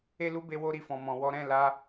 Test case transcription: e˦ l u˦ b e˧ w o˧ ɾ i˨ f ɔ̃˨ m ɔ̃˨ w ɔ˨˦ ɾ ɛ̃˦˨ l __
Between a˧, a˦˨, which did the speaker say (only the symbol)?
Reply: a˧